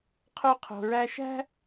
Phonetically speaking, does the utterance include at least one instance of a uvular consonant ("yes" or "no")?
yes